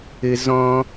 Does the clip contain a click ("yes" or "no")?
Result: no